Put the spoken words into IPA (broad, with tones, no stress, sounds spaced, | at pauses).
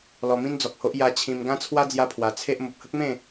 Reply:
l ɔ˧ m ĩ˦ n d͡z ɔ˨ k̚ h o˦ ʔ j a˧ t͡ɕʰ ĩ˧ m ɡ ã˦ t͡sʰ w a˦ d͡z j a˦ pʰ w a˧ t͡sʰ e˦ ʔ m o˨ p̚ h ə˦ k̚ m ẽ˥˧